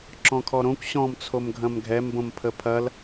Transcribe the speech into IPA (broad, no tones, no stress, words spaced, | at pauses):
ǁɔ̃kʰɔɾõkʷ ɕɔ̃m t͡sʰomɡʱɐ̃mɡʱɛmbõm pʰəpʰɐl